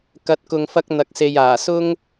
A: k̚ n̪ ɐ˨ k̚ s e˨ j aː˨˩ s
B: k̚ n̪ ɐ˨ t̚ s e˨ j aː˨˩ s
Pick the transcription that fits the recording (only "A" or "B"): A